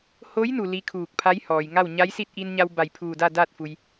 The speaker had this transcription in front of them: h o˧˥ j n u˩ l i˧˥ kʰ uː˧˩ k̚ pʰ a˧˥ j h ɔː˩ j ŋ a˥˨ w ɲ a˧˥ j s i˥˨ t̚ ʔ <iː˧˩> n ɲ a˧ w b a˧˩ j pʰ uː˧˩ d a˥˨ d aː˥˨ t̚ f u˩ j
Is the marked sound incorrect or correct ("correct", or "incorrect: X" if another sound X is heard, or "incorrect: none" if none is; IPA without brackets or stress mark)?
incorrect: iː˧